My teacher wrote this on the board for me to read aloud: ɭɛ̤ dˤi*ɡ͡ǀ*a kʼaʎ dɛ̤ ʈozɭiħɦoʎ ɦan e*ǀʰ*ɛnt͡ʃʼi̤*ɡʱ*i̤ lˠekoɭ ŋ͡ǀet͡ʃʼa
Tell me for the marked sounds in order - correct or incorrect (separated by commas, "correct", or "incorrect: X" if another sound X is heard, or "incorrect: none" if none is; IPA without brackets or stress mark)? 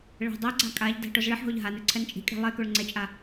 correct, correct, incorrect: kʼ